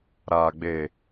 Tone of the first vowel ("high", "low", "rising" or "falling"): low